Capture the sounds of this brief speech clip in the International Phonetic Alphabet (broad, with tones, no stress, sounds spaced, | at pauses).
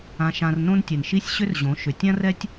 ã˧ ʃ ã˧ r n õ˦ n tʲ ɛ˨ n ʃ i˦ sʲ ɕ ʏ˦ r ʑ õ˨˦ ʃ ʏ˨ tʲ ã˦ r ɛ˦ tʲ